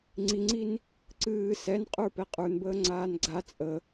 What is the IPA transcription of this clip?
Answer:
ŋ͡ǀ i ŋ͡ǀ i n | ǀ ɨː s ɛ n qʼ ə˞ p ɛ qʼ ə˞ n b əː ŋ͡ǀ aː n ɡ͡ǀ a t͡sʼ ə

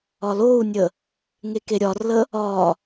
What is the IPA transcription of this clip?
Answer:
ɒ l o u̯ nʲ ə | ŋ e k e ɾʲ ɒ r l ə | ɒ

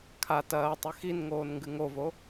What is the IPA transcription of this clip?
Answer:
kʰ a t ɐː tˤ ʉ x i n ŋ oː n ŋ ɡ ɨ ŋ o v o

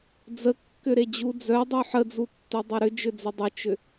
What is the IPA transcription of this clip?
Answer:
d͡z ə kː ʏ ɾ e d͡ʑ u d͡z œ dˤ u ħ ə d͡z u tː œ dˤ e ɾ ʏ d͡ʒ ʏ d͡z ʏ dˤ ʏ t͡ʃ ʏ

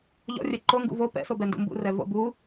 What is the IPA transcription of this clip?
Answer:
ʎ ɔ̰ rʲ ɛ ǃ o ŋ ɡ ṵ v o p ɛ̰ s o b ɛ n d ṵ m b ṵ r ɛ v o̰ b u

